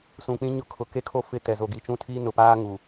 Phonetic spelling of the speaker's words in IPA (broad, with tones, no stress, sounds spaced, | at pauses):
s ũ˨ k͡p ĩ˦ ɲ ʊ˦ kʰ ʊ˨ k e˦ kʰ o˦ f ɪ˦˨ t ɛ˨ z o˨ ɡ i˨ t͡ʃ ũ˦˨ tʰ i˦ n ʊ˨ p aː˦ ŋ u˨